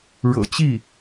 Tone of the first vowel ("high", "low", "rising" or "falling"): low